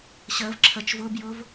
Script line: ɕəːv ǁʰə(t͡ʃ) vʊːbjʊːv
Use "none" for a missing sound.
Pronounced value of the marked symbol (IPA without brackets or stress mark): t͡ʃ